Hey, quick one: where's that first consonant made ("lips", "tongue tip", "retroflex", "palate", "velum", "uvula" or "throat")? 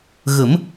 velum